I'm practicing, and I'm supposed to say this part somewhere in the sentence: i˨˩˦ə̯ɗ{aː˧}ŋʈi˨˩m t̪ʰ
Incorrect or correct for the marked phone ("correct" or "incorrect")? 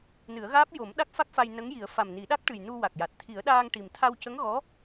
correct